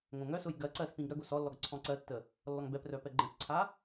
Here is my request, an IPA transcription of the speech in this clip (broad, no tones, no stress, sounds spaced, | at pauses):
ŋ õ ŋ œ s ʊ j ɡ ɜ ǀ ɜ s p ĩ ɡ ɾ œ ɡ o s ɔ lː ɔ ɡ ǀʰ ɔ̃ ǀ ɜ tː ə | lː ɔ ŋ b ɛ p r œ p ɛ ɡ͡ǃ ɛ̃ p ǀʰ a